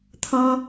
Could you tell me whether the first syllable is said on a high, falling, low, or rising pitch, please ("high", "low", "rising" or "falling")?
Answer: high